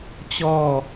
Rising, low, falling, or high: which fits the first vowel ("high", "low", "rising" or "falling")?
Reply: falling